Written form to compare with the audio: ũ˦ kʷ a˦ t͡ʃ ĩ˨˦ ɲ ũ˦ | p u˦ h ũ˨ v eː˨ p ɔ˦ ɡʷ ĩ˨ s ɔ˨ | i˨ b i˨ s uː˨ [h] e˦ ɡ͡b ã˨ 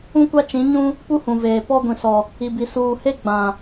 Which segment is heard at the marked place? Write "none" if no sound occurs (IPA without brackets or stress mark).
h